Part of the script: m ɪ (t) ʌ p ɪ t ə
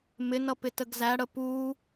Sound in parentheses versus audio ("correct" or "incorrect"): incorrect